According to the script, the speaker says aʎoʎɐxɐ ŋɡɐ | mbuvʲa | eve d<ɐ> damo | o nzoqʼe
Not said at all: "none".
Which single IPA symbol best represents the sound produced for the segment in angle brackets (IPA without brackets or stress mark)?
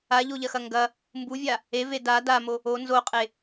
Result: a